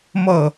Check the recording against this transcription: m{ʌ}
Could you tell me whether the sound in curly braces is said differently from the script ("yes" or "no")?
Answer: no